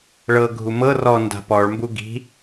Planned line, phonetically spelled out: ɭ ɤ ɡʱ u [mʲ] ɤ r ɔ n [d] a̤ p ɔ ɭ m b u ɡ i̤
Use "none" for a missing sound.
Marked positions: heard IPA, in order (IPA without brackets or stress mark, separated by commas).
m, d